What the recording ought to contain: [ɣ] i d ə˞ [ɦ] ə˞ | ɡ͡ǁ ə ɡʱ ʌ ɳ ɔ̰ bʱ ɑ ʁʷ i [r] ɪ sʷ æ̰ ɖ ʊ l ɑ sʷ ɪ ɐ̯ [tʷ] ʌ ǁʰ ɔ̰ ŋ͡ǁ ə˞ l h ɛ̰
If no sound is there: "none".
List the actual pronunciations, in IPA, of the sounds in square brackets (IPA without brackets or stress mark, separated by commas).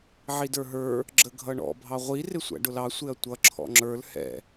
ʕ, ɦ, r, tʷ